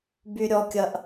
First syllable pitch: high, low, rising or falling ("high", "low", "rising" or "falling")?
high